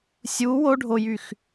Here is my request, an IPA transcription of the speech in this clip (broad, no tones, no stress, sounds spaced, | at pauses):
sʲ u w o ɖʱ o j y x